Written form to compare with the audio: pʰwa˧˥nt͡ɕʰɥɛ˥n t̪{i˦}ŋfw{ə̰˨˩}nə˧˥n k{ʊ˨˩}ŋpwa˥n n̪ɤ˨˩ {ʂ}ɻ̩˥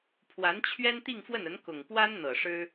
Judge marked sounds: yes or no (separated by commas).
no, no, yes, yes